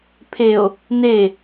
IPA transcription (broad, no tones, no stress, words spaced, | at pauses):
pʰeo̯ | ne